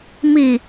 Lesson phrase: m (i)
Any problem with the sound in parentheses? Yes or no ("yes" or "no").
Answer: no